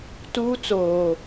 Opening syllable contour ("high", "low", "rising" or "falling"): high